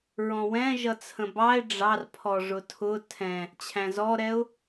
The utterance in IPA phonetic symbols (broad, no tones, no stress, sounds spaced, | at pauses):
ɹ ɔ̃ w ɛ̃ ʒ ʌ t͡sʰ ə̃ b ɑ ɪ̯ ɖ͡ʐ ɑ r pʰ ɔ ʐ ʊ tʰ ʊ tʰ ɛ̃ | t͡ɕʰ æ̃ z ɔ ɾ ɛ ʊ̯